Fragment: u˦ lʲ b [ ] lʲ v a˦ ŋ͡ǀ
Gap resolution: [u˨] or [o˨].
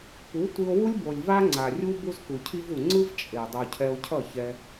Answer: o˨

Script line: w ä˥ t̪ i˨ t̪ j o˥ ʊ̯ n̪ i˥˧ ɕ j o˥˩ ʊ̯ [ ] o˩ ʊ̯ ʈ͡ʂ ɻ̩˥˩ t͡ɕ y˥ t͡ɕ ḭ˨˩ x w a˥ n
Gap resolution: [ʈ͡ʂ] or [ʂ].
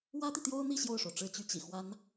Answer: ʂ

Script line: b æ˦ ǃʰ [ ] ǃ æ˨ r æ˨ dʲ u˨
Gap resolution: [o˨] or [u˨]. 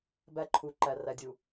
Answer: u˨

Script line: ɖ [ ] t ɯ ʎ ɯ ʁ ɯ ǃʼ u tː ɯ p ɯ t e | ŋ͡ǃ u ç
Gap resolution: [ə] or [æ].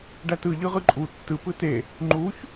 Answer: æ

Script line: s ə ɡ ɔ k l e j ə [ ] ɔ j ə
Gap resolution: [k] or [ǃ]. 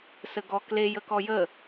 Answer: k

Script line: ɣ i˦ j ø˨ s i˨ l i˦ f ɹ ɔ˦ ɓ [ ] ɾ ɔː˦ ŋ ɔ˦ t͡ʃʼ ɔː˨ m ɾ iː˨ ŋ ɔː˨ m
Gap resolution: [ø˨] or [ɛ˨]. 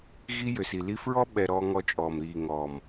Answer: ɛ˨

